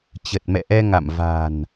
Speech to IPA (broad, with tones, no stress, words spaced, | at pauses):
t͡ɕə˨˩t̚mɛ̰˧˨ʔɛ˧ŋa̰˧˨m va̤˨˩n